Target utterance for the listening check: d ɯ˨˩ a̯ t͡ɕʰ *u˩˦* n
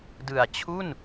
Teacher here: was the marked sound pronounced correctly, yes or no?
no